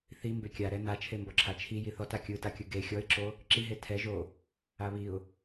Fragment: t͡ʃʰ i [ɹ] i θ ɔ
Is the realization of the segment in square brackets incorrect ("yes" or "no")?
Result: yes